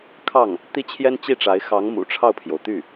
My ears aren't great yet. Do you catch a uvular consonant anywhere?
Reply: no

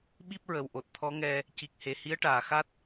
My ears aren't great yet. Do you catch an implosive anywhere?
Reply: yes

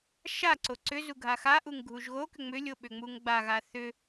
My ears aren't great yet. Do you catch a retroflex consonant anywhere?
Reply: no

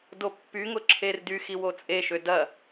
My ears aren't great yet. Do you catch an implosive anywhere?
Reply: no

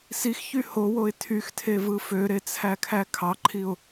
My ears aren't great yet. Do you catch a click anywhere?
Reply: yes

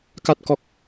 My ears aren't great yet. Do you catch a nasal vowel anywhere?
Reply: no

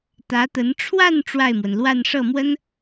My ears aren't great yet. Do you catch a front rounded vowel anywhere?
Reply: no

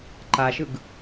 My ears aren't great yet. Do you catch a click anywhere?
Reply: yes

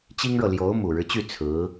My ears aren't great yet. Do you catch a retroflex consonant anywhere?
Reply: yes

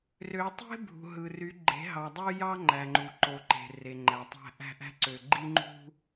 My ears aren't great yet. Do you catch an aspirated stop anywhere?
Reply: no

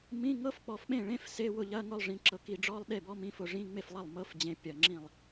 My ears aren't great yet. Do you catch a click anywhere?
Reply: yes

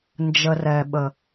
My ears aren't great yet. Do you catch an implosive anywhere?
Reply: yes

